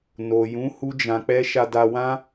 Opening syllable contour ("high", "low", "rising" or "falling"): low